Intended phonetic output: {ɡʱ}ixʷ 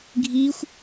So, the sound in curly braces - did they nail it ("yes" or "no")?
yes